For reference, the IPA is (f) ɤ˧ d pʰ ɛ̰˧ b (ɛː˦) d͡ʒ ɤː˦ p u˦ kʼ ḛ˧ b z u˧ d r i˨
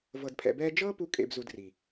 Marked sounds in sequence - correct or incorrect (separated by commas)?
incorrect, correct